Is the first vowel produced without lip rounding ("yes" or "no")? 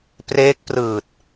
yes